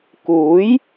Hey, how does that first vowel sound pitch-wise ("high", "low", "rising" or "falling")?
rising